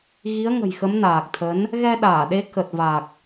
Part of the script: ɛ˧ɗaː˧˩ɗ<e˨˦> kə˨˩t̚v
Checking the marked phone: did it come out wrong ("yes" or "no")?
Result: no